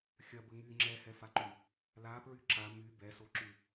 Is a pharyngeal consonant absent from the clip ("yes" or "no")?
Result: yes